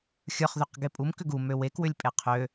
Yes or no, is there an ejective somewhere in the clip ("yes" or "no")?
yes